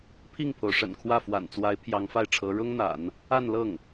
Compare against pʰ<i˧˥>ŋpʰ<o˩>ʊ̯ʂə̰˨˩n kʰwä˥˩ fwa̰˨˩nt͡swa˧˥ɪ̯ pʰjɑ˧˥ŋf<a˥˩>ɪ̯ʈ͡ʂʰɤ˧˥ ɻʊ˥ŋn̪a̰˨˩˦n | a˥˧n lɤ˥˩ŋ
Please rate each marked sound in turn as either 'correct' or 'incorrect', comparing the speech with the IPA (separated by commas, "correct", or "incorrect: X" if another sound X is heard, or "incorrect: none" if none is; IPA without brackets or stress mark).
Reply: incorrect: i˥˩, correct, correct